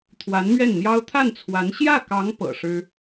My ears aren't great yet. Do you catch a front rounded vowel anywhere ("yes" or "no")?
no